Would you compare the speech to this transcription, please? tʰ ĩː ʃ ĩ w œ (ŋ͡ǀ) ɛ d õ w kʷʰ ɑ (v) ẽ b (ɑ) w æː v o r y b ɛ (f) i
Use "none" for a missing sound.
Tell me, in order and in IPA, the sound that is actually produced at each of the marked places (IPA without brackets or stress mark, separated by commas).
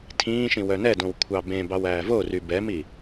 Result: n, b, ɑ, m